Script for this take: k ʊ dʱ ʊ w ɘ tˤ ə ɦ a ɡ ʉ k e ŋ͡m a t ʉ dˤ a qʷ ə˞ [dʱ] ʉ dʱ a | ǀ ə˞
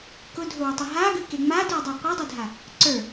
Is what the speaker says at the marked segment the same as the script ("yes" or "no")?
no